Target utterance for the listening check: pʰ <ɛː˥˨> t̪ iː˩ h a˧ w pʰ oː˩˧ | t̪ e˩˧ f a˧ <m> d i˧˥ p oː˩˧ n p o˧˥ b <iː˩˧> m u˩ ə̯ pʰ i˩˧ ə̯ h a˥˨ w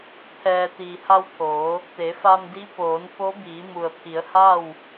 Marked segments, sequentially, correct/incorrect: incorrect: ɛː˩, correct, correct

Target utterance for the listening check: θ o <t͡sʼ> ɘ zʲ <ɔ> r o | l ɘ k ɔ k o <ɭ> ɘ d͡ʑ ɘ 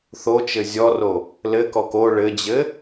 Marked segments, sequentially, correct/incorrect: incorrect: t͡ʃ, correct, correct

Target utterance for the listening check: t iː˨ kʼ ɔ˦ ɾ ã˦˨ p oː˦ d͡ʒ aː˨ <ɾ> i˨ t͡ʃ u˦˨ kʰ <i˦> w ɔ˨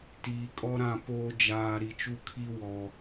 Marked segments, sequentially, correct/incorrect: correct, correct

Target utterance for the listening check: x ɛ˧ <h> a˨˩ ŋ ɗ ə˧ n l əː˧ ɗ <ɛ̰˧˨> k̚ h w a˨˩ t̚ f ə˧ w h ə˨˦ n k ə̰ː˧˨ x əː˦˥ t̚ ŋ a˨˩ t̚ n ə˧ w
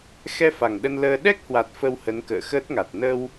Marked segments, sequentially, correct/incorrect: incorrect: f, incorrect: ɛ˦˥

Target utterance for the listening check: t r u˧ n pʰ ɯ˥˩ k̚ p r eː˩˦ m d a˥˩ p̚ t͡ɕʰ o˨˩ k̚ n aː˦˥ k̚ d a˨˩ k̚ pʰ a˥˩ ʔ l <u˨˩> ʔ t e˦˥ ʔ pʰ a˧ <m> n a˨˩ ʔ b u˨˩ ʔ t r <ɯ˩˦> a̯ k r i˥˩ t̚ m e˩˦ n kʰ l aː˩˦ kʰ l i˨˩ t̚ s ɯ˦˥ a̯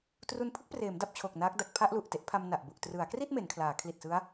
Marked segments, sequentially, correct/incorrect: correct, correct, correct

